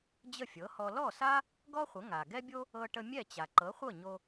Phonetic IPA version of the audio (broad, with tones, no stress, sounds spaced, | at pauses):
d͡ʑ ə˥˩ fʲ ɤ˩˥ h ɔ˧ l ɔ˥˩ s a˥ | ɡ ɔ˥ χʷ ə˩˥ ŋ a˩ ɡ ɛ˥ bʲ o˥ | ɤ˧ ʈ ə˧ mʲ ɛ˥˩ t͡ɕ a˩ ǃ ɤ˩˥ χʷ ɤ˥˩ ɲ o˧